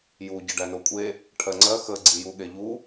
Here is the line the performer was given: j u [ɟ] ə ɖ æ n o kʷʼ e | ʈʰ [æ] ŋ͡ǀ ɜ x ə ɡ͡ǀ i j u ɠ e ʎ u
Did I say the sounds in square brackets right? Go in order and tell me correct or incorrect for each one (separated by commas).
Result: correct, incorrect